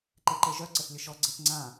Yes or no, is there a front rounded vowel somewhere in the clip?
yes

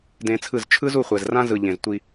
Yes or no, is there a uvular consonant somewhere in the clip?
yes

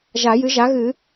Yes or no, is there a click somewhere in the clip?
no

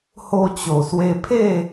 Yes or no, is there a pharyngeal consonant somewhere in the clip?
no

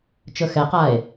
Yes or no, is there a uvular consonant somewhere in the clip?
yes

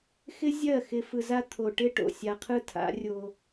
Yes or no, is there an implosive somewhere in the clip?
no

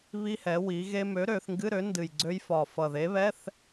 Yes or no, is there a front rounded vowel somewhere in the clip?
yes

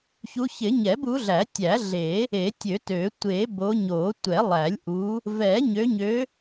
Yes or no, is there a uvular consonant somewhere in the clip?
no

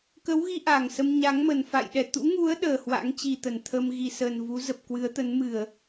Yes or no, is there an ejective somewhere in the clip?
no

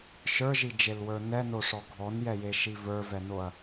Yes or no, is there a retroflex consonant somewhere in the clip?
yes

